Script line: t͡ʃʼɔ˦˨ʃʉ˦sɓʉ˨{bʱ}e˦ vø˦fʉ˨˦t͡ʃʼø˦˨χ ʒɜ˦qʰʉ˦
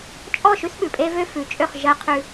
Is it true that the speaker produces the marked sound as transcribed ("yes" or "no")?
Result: no